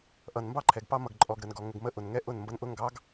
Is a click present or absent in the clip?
present